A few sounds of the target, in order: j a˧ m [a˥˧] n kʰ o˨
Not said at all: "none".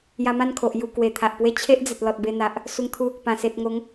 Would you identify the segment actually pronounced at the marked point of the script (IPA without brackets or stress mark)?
ã˥˧